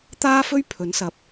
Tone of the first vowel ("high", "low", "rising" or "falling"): high